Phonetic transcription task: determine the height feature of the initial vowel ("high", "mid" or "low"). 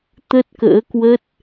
mid